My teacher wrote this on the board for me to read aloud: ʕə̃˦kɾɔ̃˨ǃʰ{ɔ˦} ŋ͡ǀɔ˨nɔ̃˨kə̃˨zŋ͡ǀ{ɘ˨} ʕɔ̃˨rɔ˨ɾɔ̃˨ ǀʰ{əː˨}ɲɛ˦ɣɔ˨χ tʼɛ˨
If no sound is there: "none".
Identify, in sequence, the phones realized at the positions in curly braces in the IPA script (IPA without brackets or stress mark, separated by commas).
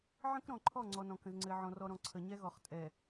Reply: ɔ˦˨, ɘ˨, ə˨